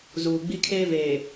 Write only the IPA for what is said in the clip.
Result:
zuː˨ɡ͡bi˦kʰeː˦veː˨

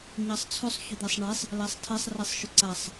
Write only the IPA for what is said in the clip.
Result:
ɲɑsˤt͡sʰɵsˤ çʏd̪ɛsˤɳɛsˤ | læsˤtʰɛsˤ rɛsˤʃʏǀasˤ

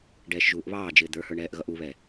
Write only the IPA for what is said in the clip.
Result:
ɖɛːʃʒuːʔβɑːd͡ʒɪː d̪ə˞hə˞ɳ ɛːʔɣʌʔuβɛ

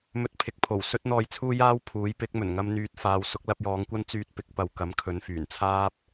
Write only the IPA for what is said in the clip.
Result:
mɵ˧t̚pʰɪ˨k̚pʰo˨˩w sɵ˥t̚n̪ɔː˧jt͡sʰuː˥jaː˥w pʰuː˨˥j pɪ˨˥k̚mɵ˨˩nŋɐ˧m n̪yː˧t̚ faː˨˧w sʊ˨˥k̚lɐ˧p̚jɔː˨˧ŋkʷɐ˥n t͡syː˧t̚pɪ˨˥k̚pɐ˨w kɐ˨˥m kʰɵ˨˥n fyː˨˩nt͡sʰaː˥p̚

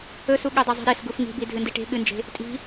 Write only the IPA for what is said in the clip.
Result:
ɵsu ɠɵdˤezˤi̤ɾes ɡufŋi̤bi dʱɨndiʈe̤ ɠɨnd͡ʒe̤ | tʼi̤

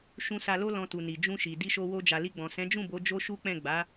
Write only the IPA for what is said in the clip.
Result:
ʃũ˧sa˧ lo˦lɔ̃˧tu˨ni˨ d͡ʒũ˧ʃi˨ di˧ʃo˧wo˧ d͡ʒa˨li˧ɡ͡bɔ̃˨ sɛ̃˨˦d͡ʒũ˦˨bo˨˦ d͡ʒo˦ʃu˦k͡pɛ̃˦˨ ɡ͡ba˨˦

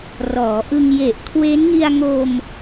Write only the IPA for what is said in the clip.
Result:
rɔː˩˦ʔɯ˧ŋje˨˩ʔ kʰwe˦˥nŋi˧a̯ŋo˧m

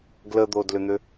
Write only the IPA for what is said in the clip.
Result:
ɡləd̪odlʏn̪ʏ

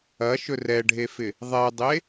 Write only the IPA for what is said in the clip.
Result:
ɐʃɵ rɛɖʱefɪ | ðˤɛdˤe

